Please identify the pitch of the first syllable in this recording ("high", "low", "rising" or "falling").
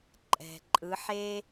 low